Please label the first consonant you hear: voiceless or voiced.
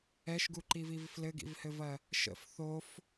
voiceless